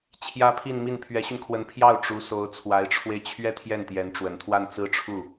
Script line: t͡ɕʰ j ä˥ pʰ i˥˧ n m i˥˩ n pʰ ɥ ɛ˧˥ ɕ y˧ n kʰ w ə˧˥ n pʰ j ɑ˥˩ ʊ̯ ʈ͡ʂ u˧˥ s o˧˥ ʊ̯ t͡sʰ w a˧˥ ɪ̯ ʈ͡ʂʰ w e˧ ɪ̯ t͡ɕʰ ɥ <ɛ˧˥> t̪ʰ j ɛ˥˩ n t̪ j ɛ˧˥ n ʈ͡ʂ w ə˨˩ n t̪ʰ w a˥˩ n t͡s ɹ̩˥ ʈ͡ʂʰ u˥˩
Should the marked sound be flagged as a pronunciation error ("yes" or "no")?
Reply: yes